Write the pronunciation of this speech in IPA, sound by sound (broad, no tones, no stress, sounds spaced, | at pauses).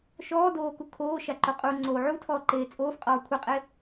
ʃ ɔː d oː k u kʰ oː ʃ a ǃ o qʼ u ŋ͡ǀ oː ʕ u tʰ ɔː ǃ eː t͡sʼ oː f qʼ ɔː kʷʰ e qʼ e